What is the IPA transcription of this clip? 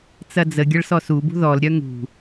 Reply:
t͡s ɐ d͡z ə ɡʲ ɐ ɭ s ɔ s u b ṳ ð ɔ l ɾʲ œ ŋ ṳ

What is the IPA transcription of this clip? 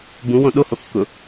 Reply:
b ũ w õ ɗ o h o kː ʊ

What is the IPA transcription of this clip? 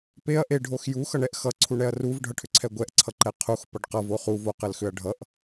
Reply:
p e ɐ̯ ʔ e ɖʱ o x j u x ʌ ɳ ɛ ʔ x ʌ ǀʰ u ɳ ɛ ɐ̯ r u v ɖʱ ʌ ʈʰ ʏ ǀʰ ɛ ɡʷ ɛ ʔ ǀʰ ʌ ǃ ɛ qʰ u x p ʌ ɖ q ʌ v o χ u v o q ɘ l x ʏ ɐ̯ ɖʱ ʌ ʔ

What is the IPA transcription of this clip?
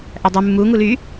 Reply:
ʔ æ dˤ ʉ mː u ŋ u l y

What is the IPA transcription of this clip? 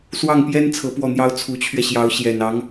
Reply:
s w ɑ˥˩ ŋ p j ɛ˥ n t͡sʰ ɤ˧˥ p w ɔ˥˩ n̪ j ɑ˥ ʊ̯ t͡sʰ u˧˥ t͡ɕʰ ɥ ɛ˧ ɕ j ɑ˧˥ ʊ̯ ɕ j ɛ˨˩ n ɑ˧˥ ŋ

